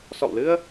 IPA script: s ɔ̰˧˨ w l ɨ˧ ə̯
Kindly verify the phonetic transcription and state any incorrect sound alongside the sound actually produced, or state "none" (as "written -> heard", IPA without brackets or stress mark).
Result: none